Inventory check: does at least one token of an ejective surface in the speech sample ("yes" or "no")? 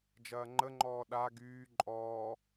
yes